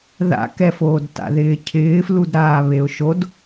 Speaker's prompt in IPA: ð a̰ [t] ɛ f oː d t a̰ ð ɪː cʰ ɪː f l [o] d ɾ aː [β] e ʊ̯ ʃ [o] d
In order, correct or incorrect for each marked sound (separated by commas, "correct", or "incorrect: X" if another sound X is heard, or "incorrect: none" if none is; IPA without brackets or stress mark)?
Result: incorrect: k, incorrect: u, correct, correct